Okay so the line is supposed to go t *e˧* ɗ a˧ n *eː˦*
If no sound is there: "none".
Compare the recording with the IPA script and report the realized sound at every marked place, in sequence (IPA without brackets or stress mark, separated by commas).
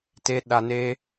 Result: e˧, eː˦